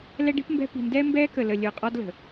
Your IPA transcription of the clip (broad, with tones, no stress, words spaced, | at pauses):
lɛ˦ɖi̤˦pmbɛ̤˦ pi̤˨ndɛː˦ mbɛː˦kə˨lə˨ lʲə˞˨qʼɒ˦dlə̤˨